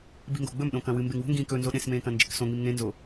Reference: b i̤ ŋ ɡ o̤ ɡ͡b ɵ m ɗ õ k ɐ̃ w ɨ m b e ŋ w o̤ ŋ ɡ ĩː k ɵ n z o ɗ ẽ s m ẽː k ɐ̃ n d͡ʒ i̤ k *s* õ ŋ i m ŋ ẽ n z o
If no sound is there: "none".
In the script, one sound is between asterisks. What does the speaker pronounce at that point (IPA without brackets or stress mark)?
s